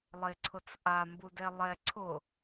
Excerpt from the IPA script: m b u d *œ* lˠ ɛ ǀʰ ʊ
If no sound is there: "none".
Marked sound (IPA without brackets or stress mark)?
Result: ɛ